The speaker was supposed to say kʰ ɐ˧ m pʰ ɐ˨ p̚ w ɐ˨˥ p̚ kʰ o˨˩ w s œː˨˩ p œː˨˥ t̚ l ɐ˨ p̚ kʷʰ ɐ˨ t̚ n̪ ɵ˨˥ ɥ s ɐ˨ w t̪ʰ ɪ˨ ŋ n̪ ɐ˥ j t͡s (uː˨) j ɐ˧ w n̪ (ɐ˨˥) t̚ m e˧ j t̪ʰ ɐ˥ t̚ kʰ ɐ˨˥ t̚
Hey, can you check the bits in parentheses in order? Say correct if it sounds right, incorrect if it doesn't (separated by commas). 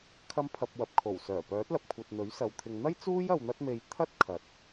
incorrect, incorrect